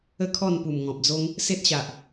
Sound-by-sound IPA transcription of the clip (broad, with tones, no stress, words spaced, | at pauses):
ə˥˧kʰɔ˥˧npu˨˩m ŋɔ̃˨p̚d͡zo˦ŋ | se˦t̚ɕa˨ʔ